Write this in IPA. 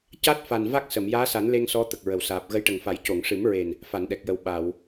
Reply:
c a˦˥ t̚ f a˨˩ n v a˦˥ k̚ s ə˨˩˨ m j aː˧˥ s a˨˩˦ n l e˧ ŋ s ɔ˧˥ t̪ ə˨˩ k̚ ɹ ə˨˩˨ w s aː˨˩ p̚ ɣ ə˧˥ j ʈ ə˨˩ ŋ f a˨˩˦ j c o˨˩˨ ŋ ʂ ɨ˨˩˦ m ɹ e˨˩ n | f a˨˩˨ n ɗ ɛ˨˩ k̚ j ə˨˩ w ɓ a˨˩˨ w

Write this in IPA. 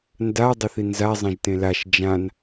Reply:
n d a dˤ ə θ i n z a zˤ ẽ ʒ t ẽ l a ʃ d͡ʒ ã n

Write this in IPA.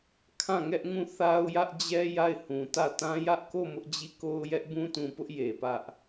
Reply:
kʰ ã˦˨ ŋ ɛ˦ ʔ ŋ ũ˦˨ θ a˦ ʊ̯ j ä˦ ʔ d͡ʑ ɛ˦ j a˦˨ ɪ̯ h ũ˨ t ä˦˨ t ã˦ j ä˦ ʔ k o˦˨ m ʊ˦ ʔ d͡ʑ i˦˨ k o˦ ʊ̯ j ɛ˦ ʔ b ũ˦ t ũ˨ p ʊ˦ ʔ j e˨ p ä˦ ʔ

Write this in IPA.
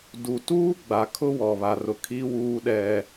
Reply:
d u˨ t uː˦ ɡ͡b a˨ kʰ ʊ˦ w ɔ˨ β a˨ r ʊ˨ kʰ i˦ w uː˦ ɗ ɛ˦

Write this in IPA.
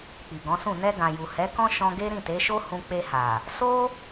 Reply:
k͡p i˨ ɡ ɔ̃˨˦ s ũ˦˨ n ɛ˧ ɡ ã˨ j u˨ h ɛ˨˦ k ɔ̃˦ ʃ ɔ̃˧ ɡ e˦ ɾ ĩ˦˨ t e˨˦ ʃ o˦ h ũ˧ k͡p e˧ h a˨ | s o˦

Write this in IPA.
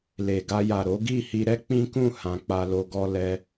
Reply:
l e˨ ɡ a˧ j a˨ ɾ o˨˦ ɡ i˦˨ h i˧ ɾ ɛ˦ k͡p ĩ˦ k ũ˦˨ h ã˧ k͡p a˧ l o˧ ɡ ɔ˦ l ɛ˦

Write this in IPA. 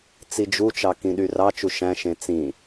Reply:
t͡s i d͡ʒ u t͡ʃ ɑ k ĩ ɗ y r ɑ t͡ʃ u ʃ æ̃ ʃ ẽ t͡s ĩ

